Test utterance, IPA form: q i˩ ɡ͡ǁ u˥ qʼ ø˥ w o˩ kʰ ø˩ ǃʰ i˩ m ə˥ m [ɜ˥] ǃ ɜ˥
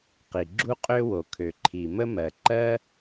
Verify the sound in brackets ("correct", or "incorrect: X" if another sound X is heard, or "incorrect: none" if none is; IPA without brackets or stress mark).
incorrect: ɜ˩